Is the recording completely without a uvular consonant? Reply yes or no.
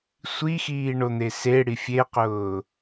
no